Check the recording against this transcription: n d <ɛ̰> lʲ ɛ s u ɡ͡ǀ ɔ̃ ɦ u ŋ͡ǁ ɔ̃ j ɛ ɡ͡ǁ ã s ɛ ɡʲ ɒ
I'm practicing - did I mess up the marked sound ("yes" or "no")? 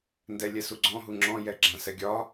yes